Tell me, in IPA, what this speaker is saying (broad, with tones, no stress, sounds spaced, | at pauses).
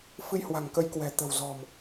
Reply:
f ɨ˧ j h w a̤˨˩ ŋ k ə˨˦ j k w ɛ̤˨˩ t̪ ə̤˨˩ w z ɔ̤˨˩ m